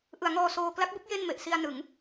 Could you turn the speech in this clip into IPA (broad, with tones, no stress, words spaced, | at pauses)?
ʔɯ˩˦a̯ŋɔː˧ soː˧ kla˦˥k̚bɯ˦˥k̚ je˥˩nme˨˩ʔ si˧a̯ nɯ˩˦ŋ